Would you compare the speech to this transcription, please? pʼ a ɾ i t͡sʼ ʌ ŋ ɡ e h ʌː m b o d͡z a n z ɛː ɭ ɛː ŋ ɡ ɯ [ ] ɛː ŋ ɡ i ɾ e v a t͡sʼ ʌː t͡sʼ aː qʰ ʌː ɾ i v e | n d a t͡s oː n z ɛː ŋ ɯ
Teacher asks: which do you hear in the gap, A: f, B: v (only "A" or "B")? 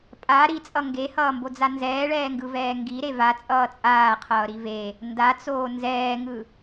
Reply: B